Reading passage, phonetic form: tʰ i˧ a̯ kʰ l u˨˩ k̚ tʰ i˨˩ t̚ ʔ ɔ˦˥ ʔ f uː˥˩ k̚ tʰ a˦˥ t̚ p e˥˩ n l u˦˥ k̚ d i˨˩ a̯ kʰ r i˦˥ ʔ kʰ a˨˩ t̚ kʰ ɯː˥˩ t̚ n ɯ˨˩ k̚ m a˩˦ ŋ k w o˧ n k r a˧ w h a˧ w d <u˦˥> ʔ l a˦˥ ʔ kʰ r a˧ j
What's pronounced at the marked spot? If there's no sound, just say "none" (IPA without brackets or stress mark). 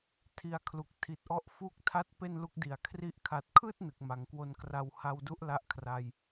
u˦˥